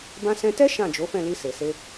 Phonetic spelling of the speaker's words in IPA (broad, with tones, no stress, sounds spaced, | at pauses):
b ã˧ s ɛ̃˧ t ɛ˦ ʃ ã˦˨ d͡ʒ o˨˦ f ɛ̃˦˨ l i˧ s e˨ s e˧